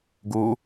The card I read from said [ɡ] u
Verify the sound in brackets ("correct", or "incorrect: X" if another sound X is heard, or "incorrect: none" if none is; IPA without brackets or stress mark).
correct